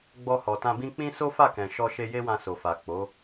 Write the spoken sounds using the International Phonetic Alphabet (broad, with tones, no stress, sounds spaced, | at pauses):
ɡ͡b ɔ˧ h ɔ˨ t ã˧ b ĩ˦ k͡p ĩ˦ s o˦ f a˦˨ k ɛ̃˨ ʃ ɔ˧ ʃ e˧ j e˦ w ã˧ s o˨ f a˨ k͡p o˨˦